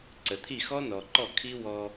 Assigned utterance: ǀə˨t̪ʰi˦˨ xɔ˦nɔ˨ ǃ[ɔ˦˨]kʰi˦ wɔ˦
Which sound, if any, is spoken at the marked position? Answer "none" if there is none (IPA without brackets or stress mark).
ɔ˦˨